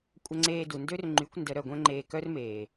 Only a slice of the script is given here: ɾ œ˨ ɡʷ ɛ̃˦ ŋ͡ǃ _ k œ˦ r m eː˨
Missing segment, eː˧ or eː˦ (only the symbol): eː˧